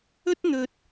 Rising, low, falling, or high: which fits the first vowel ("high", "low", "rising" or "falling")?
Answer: high